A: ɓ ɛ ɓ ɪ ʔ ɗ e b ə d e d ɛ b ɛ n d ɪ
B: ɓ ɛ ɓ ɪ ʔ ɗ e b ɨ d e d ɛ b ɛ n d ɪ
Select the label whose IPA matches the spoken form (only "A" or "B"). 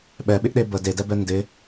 A